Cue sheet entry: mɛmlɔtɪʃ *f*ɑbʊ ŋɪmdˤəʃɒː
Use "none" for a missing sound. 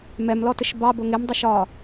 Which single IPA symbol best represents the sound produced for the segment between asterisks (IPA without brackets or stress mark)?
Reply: b